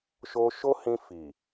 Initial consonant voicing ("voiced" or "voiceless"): voiceless